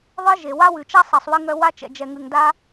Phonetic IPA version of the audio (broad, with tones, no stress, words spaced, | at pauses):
ðˤɯ˥ʒe˩ wa˥wʉ˩t͡ʃa˥ sˤɛ˩sˤwɨ˧ ŋœ˧ wa˧t͡ʃɛ̰˩d͡ʒɛ˩ŋʉ˩ŋ da˥